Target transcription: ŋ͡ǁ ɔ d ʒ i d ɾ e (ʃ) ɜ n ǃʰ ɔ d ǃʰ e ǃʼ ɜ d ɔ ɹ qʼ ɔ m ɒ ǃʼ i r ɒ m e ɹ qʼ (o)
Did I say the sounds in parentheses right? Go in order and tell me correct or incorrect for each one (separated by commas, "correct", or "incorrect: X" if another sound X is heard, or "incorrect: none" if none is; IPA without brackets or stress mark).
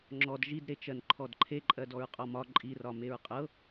incorrect: t͡ʃ, incorrect: ɤ